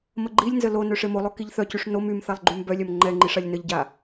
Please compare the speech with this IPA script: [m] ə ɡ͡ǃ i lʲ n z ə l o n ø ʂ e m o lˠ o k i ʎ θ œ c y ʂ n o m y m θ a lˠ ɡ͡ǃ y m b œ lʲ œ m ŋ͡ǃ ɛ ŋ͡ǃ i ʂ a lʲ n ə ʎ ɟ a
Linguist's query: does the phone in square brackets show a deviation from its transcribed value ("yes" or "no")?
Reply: no